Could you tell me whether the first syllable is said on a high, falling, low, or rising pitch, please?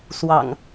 low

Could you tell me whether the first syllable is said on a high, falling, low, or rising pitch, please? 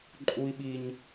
high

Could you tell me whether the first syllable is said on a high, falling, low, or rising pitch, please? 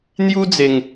high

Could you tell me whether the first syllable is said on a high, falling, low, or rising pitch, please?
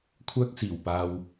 high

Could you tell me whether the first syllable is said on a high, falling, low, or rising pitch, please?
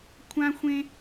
high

